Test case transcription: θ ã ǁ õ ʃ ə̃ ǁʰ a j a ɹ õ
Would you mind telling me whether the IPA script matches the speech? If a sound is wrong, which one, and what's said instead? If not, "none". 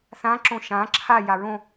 ə̃ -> ã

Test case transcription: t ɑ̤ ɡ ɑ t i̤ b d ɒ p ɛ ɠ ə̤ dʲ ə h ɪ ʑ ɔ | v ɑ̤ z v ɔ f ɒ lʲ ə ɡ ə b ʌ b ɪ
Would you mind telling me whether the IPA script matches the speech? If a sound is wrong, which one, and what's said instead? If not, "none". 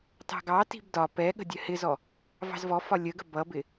ʑ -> z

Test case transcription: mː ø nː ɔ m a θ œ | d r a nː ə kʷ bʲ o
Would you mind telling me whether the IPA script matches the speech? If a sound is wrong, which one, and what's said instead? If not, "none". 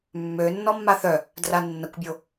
m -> mː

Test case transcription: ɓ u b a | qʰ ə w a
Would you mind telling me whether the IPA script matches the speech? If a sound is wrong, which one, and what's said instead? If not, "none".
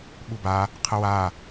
none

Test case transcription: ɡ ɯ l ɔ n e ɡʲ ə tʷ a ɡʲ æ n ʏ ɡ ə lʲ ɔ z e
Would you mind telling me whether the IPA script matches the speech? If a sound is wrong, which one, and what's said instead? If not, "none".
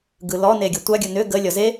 æ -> ə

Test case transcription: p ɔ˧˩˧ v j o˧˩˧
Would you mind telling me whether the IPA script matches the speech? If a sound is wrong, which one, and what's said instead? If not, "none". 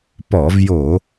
none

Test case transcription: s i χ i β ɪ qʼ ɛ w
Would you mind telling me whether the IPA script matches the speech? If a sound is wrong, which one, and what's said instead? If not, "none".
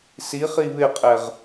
w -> ʁ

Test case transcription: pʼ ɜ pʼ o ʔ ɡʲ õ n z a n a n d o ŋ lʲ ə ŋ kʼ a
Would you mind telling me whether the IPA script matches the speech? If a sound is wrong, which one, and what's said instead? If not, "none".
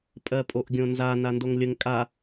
none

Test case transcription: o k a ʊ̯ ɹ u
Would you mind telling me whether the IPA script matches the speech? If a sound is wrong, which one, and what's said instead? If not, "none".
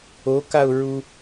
none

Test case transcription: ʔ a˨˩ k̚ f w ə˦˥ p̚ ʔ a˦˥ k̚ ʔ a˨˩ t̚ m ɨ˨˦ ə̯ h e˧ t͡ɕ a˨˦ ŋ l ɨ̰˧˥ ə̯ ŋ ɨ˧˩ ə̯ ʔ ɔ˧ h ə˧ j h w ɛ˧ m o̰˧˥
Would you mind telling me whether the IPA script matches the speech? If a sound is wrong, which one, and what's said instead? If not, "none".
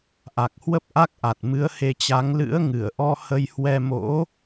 f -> h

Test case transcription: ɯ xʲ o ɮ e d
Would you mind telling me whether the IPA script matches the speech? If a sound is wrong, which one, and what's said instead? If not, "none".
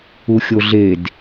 ɯ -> u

